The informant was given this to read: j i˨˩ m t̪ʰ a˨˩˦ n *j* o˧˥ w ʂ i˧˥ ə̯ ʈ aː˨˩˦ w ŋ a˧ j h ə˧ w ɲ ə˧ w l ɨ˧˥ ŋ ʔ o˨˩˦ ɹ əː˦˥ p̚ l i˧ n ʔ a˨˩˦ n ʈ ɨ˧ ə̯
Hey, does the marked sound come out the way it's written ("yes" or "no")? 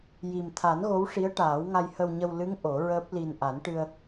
no